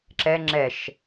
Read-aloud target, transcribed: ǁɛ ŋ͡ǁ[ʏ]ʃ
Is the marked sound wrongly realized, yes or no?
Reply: yes